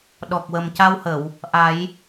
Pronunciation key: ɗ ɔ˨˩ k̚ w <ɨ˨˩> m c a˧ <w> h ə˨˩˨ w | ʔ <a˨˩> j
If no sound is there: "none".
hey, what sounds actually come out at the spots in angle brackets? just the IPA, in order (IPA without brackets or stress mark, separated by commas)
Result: ə˨˩, w, a˨˩˦